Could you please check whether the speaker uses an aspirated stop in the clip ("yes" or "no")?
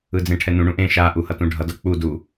yes